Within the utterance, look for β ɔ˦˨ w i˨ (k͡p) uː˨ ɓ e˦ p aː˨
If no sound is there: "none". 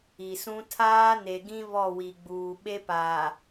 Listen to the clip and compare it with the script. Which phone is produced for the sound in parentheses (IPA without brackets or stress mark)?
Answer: ɡ͡b